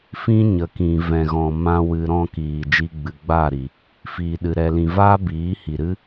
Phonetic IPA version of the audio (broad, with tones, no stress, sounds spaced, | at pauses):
f ĩ˦ ɲ ə˨ k ĩ˨ v ɛ̃˨ ɣ ɔ̃˨ m ã˧ w ɨ˧ ɾ ɔ̃˦ k iː˨ d͡ʒ i˧ ɡ͡b ɨ˨ ɡ͡b aː˦˨ ɾ i˨ | f iː˨ ɗ ɨ˨ ɾ ɛ˨ l ĩ˨ v aː˦ b iː˨˦ h i˨ ɾ ɨ˦